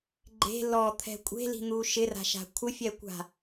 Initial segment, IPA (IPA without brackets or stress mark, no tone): ɡ͡ǃ